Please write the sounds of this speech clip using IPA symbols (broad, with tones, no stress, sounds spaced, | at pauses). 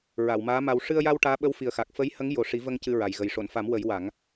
ɹ a˨˩˨ w m aː˧˥ m a˧ w ʂ ɨ˧ ə̯ j a˧ w ʈ aː˧˥ ɓ ə˧˥ w f i˨˩ ə̯ x a˨˩ k̚ f ə˧˥ j h ə˧˥ ŋ j o˨˩ ʂ i˨˩˦ v ə˧ ŋ c ɨ˧ ɹ a˨˩ j ɣ ə˨˩ j ʂ o˨˩˨ n f a˨˩˦ m w ə˨˩˦ j w a˨˩˦ ŋ